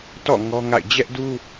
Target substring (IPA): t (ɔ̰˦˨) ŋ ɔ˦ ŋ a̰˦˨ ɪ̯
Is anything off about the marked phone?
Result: no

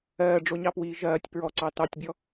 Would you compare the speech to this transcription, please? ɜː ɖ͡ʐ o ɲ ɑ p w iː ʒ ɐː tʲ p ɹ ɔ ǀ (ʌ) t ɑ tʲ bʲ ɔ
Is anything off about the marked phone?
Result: yes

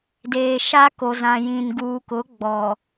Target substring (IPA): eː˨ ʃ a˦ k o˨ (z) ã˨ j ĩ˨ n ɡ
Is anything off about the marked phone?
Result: no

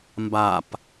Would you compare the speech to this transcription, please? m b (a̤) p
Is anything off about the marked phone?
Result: yes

